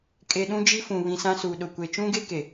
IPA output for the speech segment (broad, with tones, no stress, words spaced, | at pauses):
kʼe˨ ɗũ˦d͡ʒi˦fũ˨ βĩ˨sã˦su˨ɗʊ˨ kʷe˨t͡ʃũ˦ɡe˦ ke˨